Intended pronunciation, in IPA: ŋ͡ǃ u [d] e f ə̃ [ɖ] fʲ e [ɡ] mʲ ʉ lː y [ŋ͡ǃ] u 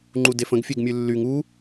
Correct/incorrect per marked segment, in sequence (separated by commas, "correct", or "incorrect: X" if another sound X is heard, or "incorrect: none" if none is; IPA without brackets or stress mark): correct, incorrect: ɡ, correct, incorrect: ŋ